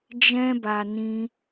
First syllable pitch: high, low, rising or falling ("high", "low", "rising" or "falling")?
high